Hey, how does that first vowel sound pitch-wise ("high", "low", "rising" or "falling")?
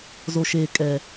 low